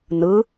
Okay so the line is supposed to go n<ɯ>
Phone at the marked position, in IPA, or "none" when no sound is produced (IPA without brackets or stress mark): ɯ